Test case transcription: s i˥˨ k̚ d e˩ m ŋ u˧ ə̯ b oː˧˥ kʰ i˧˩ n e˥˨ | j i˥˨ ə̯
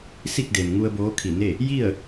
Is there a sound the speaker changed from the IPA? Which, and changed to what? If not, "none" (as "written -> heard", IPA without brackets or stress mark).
none